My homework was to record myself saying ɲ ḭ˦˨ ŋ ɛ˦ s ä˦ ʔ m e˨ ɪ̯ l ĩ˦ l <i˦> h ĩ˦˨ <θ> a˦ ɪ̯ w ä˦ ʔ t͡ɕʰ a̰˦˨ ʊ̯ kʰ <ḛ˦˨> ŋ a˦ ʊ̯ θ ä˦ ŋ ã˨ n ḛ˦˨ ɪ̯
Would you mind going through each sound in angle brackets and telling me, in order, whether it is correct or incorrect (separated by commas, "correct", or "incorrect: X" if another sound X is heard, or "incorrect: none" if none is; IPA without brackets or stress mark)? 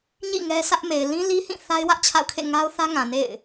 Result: correct, correct, correct